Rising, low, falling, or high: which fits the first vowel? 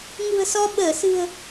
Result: low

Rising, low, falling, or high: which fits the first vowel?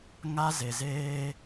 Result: high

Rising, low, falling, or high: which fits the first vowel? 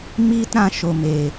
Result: high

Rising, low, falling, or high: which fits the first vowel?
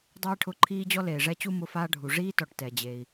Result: high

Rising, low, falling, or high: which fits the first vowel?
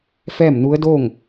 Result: falling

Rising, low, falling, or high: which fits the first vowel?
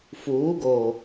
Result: rising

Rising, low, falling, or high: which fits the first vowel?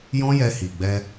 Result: high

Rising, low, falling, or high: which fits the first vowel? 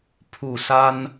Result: low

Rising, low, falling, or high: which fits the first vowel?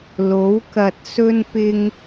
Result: rising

